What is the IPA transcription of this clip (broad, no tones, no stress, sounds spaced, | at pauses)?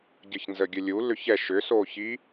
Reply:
ɟ ə ç n z ə ɡʲ ə lʲ u l ʏ ç ɛ ʃ ʏ s o ç i